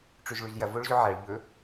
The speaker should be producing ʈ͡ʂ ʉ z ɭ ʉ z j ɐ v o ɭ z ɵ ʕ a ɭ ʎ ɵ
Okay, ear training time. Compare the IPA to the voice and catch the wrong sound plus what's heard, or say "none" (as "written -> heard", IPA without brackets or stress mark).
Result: none